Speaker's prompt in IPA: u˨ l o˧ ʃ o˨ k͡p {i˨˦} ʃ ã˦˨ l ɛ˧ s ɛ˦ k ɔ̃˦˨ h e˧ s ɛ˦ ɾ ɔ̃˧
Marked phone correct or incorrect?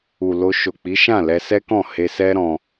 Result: correct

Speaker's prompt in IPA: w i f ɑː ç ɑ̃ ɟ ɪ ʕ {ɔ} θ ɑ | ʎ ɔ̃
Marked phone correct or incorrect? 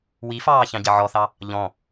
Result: correct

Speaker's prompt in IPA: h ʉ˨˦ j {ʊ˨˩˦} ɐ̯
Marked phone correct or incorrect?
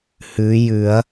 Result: incorrect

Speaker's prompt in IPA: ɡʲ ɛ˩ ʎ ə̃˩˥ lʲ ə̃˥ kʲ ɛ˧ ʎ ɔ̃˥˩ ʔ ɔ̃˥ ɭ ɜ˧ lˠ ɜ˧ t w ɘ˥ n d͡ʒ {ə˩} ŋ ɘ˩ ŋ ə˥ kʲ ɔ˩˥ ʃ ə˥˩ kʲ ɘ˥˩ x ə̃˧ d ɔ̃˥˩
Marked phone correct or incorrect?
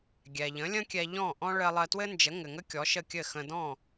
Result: incorrect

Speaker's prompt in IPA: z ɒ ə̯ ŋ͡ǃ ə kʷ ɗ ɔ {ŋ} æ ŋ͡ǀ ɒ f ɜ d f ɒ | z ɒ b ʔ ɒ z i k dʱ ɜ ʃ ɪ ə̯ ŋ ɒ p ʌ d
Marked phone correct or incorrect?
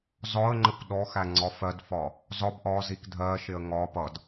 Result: incorrect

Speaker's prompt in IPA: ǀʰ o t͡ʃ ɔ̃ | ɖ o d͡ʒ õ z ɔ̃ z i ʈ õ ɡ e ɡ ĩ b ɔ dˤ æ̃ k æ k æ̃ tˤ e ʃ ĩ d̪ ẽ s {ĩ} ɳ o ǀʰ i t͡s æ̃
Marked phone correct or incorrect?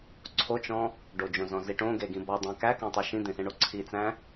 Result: incorrect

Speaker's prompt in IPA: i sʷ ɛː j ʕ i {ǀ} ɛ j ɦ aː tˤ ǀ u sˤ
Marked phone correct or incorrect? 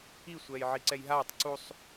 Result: correct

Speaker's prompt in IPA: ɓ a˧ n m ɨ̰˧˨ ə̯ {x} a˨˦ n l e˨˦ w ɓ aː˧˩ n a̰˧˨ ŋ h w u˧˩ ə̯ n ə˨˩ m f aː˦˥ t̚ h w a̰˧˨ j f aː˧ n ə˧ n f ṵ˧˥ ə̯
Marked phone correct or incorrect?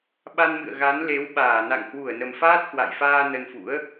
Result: incorrect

